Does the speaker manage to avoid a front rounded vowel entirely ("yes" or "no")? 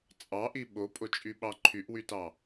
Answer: no